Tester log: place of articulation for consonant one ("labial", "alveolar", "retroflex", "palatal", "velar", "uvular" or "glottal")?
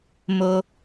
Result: labial